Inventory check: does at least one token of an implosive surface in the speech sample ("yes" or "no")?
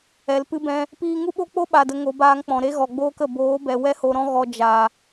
yes